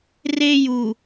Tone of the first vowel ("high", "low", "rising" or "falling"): high